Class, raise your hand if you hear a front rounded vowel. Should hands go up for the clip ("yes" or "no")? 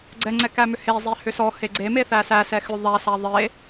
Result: yes